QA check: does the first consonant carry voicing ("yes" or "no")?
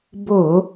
yes